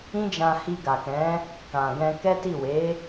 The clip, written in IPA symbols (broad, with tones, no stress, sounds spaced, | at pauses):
ĩ˦ d͡ʒ ã˧ h i˧ ɡ a˨ k ɛ̃˨˦ | k ã˨ ɡ ɛ̃˧ k ɛ˦ t i˦˨ w e˨˦